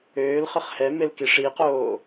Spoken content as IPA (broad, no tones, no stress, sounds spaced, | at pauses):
øː l χ ə χ h ɛ m e l k i ʂ i q oː